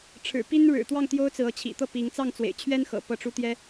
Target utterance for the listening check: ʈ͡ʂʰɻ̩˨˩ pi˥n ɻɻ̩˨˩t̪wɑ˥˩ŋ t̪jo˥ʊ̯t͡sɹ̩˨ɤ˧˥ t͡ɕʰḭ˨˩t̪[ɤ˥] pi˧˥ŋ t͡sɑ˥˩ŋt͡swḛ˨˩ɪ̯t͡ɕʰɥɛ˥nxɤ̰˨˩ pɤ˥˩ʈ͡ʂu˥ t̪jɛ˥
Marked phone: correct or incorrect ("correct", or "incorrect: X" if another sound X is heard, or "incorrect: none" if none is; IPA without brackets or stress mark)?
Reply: incorrect: ɤ˥˩